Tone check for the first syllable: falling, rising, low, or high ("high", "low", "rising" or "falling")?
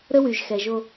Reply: high